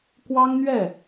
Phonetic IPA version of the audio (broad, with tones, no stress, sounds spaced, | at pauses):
k w ɑ˥ ŋ n̪ ɥ ɛ˥˩